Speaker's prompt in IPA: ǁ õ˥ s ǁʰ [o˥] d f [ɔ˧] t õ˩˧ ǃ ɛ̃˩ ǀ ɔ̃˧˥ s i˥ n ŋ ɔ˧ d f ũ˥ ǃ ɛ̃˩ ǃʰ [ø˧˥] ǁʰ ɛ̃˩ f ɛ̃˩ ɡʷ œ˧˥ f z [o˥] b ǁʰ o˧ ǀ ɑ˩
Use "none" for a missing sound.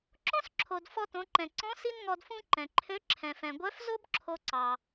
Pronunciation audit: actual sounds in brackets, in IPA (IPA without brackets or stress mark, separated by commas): o˩, ɔ˧, ø˧˥, o˥